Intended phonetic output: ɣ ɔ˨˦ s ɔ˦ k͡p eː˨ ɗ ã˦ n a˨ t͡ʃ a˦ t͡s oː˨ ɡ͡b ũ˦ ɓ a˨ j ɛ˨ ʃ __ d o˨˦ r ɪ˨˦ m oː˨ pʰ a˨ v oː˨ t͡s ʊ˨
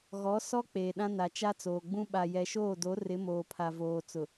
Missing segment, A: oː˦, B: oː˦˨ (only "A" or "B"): B